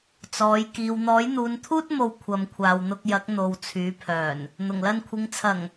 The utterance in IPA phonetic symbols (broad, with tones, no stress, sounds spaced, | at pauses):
t͡s ɔː˨˧ j k iː˨ w n̪ ɔː˨˥ j n̪ uː˨˧ n t̪ʰ uː˥ t̚ m o˨ w kʷʰ ɐ˨ m kʷʰ aː˨ w n̪ ʊ˧ k̚ j ɐ˨˥ k̚ n̪ o˨ w t͡sʰ yː˨˧ pʰ œː˨˩ n | n̪ ʊ˨˩ ŋ l ɐ˧ n kʷʰ ɪ˨˧ ŋ t͡sʰ ɐ˨˩ ŋ